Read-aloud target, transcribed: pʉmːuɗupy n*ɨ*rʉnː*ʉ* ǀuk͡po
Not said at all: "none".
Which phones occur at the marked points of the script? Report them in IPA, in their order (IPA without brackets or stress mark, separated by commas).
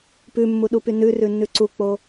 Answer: ʉ, ʉ